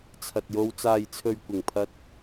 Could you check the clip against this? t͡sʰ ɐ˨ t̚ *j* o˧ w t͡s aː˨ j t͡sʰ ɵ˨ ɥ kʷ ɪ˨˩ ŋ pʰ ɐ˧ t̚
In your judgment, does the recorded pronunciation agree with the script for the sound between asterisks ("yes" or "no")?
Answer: yes